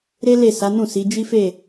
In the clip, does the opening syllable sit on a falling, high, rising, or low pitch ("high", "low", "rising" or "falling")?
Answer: high